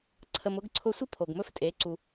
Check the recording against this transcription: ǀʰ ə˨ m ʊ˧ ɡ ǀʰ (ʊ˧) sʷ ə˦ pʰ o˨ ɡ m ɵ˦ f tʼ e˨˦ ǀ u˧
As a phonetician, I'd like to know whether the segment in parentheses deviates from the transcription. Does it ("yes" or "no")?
no